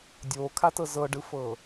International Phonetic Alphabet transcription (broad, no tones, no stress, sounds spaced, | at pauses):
dʲ oː kʰ a t ɤ z ɤ ɖ ɯ f ɤː